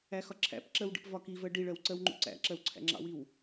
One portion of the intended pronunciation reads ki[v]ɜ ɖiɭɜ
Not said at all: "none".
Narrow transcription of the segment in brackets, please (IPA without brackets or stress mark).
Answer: v